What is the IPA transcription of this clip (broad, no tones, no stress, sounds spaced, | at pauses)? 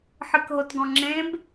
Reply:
ħ ɨ k ɦ o t ɡ ɔ̃ ŋ͡ǁ ẽ b